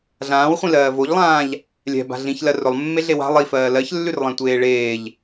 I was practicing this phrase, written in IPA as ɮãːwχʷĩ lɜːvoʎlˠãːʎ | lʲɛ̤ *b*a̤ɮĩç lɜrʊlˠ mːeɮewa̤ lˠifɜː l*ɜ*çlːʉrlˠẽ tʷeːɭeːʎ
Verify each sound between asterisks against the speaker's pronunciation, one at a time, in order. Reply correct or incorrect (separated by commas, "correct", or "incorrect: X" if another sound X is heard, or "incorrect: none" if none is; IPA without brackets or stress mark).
correct, correct